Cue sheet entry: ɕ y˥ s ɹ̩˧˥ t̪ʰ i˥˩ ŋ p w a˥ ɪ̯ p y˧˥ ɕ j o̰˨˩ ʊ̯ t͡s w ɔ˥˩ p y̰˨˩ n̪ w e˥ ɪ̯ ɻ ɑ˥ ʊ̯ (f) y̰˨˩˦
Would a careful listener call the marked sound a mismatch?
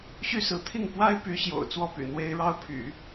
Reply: yes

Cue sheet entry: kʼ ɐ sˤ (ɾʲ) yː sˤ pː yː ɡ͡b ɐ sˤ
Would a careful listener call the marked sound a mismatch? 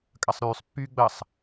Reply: yes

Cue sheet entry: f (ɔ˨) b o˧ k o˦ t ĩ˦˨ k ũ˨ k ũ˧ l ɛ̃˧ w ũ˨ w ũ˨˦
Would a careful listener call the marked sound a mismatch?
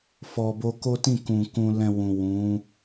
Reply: no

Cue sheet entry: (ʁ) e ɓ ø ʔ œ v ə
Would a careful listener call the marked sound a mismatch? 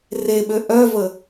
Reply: yes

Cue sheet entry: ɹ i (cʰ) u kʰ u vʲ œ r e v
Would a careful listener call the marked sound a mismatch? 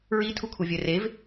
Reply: yes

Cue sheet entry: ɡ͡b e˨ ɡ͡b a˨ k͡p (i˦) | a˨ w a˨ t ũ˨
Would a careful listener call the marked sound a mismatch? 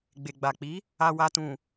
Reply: yes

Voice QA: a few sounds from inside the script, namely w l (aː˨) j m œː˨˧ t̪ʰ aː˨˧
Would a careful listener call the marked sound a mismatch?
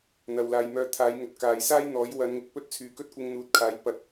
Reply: no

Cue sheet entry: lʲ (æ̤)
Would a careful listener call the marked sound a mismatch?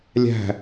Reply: no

